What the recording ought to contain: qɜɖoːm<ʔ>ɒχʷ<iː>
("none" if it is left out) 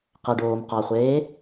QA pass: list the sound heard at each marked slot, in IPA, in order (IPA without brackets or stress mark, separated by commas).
q, eː